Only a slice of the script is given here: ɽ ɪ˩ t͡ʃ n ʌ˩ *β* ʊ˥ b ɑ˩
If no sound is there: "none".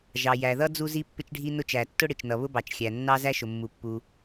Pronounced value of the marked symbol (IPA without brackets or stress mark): β